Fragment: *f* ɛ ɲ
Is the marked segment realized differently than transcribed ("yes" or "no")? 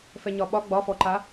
no